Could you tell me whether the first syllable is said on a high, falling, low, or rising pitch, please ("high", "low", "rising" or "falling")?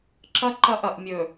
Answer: high